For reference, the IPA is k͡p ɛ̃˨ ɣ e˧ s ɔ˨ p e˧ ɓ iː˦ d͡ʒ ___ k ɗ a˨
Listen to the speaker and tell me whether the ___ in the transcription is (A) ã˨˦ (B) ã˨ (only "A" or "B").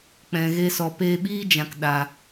B